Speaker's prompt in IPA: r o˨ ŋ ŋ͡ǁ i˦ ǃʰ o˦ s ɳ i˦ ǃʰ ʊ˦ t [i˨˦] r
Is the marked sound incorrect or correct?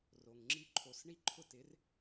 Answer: incorrect